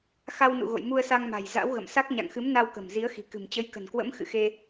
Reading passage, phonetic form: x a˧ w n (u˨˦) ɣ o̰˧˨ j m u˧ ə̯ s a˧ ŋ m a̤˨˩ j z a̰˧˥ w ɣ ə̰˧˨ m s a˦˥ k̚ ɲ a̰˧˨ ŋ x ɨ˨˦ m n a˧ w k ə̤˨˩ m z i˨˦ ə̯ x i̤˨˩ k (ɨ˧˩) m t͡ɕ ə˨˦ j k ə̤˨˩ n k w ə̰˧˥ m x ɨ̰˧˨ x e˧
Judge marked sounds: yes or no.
no, no

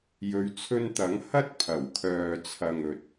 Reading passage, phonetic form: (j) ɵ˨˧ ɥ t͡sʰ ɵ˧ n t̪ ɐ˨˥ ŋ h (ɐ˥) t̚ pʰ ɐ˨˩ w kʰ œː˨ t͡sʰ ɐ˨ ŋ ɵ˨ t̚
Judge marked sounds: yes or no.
yes, yes

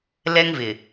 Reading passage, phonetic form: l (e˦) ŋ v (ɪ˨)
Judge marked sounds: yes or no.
no, yes

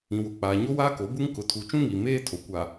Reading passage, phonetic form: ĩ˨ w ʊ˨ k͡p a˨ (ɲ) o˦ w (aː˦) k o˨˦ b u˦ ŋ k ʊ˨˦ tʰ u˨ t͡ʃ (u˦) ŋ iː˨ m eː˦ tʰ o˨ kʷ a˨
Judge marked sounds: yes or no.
yes, yes, no

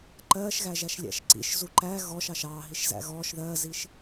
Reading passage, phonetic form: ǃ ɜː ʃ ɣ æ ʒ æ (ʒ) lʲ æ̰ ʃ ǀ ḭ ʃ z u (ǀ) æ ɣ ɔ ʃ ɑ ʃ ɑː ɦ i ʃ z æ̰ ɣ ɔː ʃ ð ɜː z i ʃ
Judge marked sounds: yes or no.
no, no

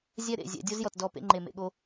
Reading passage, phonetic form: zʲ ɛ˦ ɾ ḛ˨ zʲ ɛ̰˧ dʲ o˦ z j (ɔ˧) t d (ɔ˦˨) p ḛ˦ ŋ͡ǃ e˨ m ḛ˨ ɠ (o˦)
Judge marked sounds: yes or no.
no, yes, no

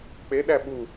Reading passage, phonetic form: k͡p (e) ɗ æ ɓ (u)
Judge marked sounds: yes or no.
yes, yes

